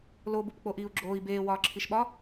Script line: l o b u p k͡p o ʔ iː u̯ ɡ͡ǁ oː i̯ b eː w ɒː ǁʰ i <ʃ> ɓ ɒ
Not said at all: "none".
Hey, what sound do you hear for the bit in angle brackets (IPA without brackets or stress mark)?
ʃ